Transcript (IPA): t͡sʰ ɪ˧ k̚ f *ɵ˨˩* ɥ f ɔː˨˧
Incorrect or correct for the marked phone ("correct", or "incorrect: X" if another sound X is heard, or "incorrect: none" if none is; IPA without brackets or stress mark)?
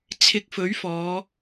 incorrect: ɵ˨˥